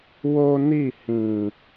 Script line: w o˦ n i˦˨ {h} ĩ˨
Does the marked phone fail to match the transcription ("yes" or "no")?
no